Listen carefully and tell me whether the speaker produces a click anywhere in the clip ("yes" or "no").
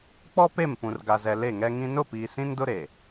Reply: no